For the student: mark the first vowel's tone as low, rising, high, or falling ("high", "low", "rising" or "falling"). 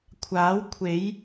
rising